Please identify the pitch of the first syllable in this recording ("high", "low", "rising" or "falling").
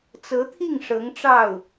rising